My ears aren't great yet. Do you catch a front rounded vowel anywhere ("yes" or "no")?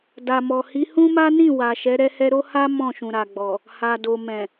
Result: no